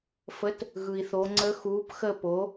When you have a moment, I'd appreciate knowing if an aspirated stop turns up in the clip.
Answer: no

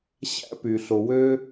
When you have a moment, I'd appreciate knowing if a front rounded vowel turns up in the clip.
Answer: yes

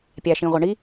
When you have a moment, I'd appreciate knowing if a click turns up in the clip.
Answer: no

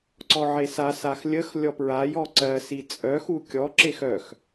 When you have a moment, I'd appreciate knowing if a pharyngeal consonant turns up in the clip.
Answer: yes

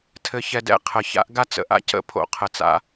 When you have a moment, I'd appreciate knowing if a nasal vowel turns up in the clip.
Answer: no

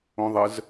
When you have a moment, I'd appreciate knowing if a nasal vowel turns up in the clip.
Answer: yes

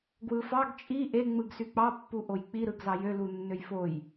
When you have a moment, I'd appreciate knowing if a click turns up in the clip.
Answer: no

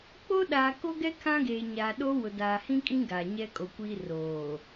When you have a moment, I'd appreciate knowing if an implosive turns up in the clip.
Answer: yes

